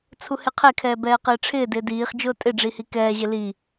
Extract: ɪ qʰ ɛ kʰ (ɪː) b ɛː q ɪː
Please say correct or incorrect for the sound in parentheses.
incorrect